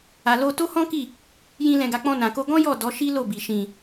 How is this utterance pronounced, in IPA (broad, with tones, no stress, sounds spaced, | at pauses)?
a˨ l o˧ t o˦ h ɔ̃˦ k i˦˨ | j ĩ˧ l ɛ̃˨ ɡ a˨ k͡p ɔ̃˧ n ã˨ k o˧ ɡ ɔ̃˦ j ɔ˦˨ d ɔ˨˦ ʃ i˦ l o˦˨ b i˨ ʃ ĩ˨